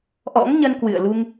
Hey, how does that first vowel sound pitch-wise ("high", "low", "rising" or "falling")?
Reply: rising